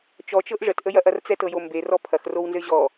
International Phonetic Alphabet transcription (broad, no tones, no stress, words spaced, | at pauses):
t͡ʃɔt͡ʃɤʔ ʐətʔəjɐʔɐr t͡sɛtɤjombe rɔpʰɐxrownzɘ ʑɔ